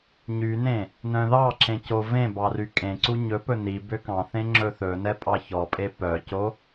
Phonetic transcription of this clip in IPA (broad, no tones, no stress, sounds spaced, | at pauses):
ɲ y n ẽ | n œ̃ ð ɑ ǁ ẽ c o v ẽ b ɑ r y kʼ ẽ ǀ u ɲ ɵ p ɵ n i b ø k ɑ̃ θ ẽ ŋ͡ǁ ɵ θ ɵ n ɛ pʼ ɑ ç ɔ pʼ e p œ c o